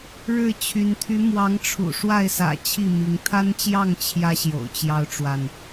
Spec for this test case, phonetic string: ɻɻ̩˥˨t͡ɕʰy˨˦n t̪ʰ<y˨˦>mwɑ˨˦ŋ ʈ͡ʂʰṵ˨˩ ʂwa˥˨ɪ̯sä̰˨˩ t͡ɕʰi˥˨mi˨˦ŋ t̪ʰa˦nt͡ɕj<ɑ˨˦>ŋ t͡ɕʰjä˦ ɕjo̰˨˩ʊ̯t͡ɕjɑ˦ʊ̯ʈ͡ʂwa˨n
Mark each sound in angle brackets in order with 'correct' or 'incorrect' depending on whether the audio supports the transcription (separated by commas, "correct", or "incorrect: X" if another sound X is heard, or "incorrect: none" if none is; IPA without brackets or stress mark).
correct, incorrect: ɑ˥˨